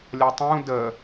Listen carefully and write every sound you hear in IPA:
lʲʌtˤũ də

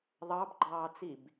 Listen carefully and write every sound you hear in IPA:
ðˤɑbɡ͡ǃɑːt͡sib

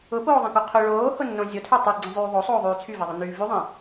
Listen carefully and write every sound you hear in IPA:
ʊpoːðˤĩko qʰʊ ɭoːhʊnːõ zʲotʰy tˤyɡ͡ǀĩzˤyː ðˤosˤoːðˤyː t͡sʰyveðˤʊnyː vyðˤĩ

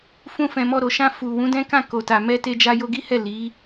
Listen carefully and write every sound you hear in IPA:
fũ˧fɛ̃˨mɔ˧ɾo˨ ʃã˧fu˨ wũ˨˦dɛ̃˦kã˦˨ ko˨ta˨ mɛ˧te˧d͡ʒa˧ jo˧ɡi˦hɛ˦˨ li˨˦

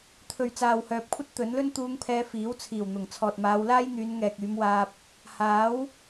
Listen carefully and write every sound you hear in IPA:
t̪ʰɵ˨ɥt͡saː˨whœː˨p̚kʷʰɐ˥t̚ t̪ɵ˨˥nlɵ˥n t̪uː˧ŋpʰɛː˧fiː˨˥w t͡sʰiː˨˩wn̪ʊ˨˩ŋ t͡sʰɔː˨t̚maː˨˧wlaː˥jn̪yː˨˧n ŋɛː˨k̚yː˨˧mwaː˧p̚ | haː˨˥w

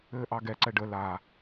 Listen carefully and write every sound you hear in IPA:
ɘːʔɑɡɛ ǀɛɖə la

